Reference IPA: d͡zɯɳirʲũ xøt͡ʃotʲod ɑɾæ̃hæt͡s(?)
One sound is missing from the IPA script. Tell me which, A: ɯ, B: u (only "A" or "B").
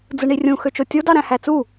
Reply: B